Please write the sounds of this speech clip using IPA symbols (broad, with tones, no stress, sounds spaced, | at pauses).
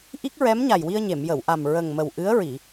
ʔ i˦˥ k̚ ɹ ɛ˧˥ m ɲ a˨˩ j w i˧ ə̯ ɲ e˨˩˨ m j ə˨˩˨ w ʔ a˨˩ m ɹ ə˨˩ ŋ m ə˨˩ w ʔ ɨ˧˥ ə̯ ɹ i˨˩˨